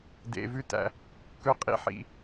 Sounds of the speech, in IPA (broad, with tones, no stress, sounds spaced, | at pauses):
d ḛ˩ v ʉ˧ t æ̰˩ | k ɵ˧ qʼ ḭ˧ ħ ḭ˩